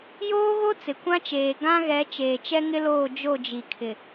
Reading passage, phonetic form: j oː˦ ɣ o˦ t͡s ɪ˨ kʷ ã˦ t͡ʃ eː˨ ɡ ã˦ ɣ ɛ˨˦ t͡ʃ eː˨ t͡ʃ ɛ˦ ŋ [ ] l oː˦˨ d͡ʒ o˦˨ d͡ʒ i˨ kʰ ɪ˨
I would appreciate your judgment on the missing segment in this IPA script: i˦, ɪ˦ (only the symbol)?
ɪ˦